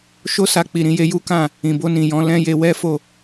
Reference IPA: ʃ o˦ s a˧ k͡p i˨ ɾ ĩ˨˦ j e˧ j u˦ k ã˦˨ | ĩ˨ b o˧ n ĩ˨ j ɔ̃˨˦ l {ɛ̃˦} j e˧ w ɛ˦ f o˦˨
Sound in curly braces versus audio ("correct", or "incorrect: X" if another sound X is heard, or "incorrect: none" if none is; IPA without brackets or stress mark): correct